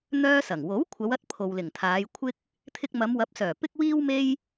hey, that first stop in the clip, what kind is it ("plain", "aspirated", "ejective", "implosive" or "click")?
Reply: aspirated